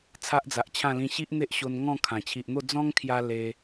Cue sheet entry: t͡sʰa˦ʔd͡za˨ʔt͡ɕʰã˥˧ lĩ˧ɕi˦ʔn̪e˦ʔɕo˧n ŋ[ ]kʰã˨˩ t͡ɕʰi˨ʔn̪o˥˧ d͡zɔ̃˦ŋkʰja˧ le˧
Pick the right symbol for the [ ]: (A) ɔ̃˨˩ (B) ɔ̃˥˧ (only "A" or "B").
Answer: B